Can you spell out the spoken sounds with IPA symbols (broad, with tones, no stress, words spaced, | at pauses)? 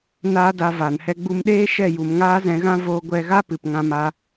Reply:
naː˦da˧ vaː˨nhɛ˧ɡ͡bu˧mɗeː˦ ʃɛ˦˨ju˨mŋaː˦ zɛ̃˧ɣã˦ voː˧ɡʷɛ˧ɣa˦ pɨ˨pŋã˧ma˧